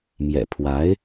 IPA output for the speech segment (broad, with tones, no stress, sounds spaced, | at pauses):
m j ɛ̰˨˩ pʰ w a˧˥ ɪ̯